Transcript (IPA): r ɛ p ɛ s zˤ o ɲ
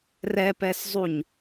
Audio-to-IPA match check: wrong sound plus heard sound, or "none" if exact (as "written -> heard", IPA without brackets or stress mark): o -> u